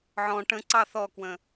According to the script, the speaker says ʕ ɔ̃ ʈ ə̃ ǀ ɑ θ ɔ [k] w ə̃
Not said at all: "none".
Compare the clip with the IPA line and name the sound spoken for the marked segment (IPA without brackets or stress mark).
k